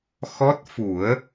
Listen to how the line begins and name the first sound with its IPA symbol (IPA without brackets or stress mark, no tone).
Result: x